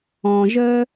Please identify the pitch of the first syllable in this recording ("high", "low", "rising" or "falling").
low